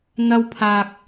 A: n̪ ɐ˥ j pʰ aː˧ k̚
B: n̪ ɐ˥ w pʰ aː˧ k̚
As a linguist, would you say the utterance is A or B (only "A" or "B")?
B